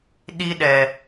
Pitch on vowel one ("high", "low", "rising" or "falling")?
high